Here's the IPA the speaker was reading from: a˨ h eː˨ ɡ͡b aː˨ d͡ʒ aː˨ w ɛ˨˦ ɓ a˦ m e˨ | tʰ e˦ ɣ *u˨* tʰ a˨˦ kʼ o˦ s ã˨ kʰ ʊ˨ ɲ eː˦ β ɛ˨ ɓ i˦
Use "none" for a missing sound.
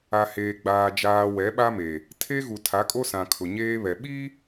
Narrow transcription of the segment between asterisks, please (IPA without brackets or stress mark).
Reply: u˨